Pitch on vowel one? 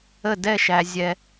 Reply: falling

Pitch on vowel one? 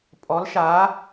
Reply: rising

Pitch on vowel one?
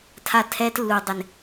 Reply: high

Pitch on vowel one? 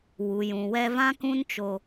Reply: low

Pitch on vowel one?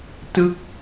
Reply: falling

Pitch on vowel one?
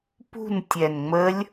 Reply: falling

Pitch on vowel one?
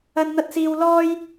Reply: high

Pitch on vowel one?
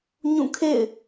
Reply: falling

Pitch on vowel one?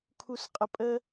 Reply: low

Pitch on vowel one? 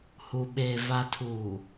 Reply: low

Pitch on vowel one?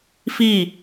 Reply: falling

